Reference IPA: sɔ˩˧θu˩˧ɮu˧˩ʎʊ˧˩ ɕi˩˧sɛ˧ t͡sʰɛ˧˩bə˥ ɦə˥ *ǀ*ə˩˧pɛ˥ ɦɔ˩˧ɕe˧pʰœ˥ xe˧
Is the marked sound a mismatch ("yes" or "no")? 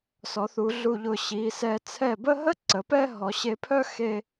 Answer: no